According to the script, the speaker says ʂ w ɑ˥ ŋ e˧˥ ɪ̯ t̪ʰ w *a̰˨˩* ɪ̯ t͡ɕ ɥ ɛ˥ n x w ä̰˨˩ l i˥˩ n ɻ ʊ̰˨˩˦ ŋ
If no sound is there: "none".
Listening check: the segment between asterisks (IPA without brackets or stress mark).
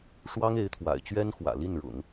a̰˨˩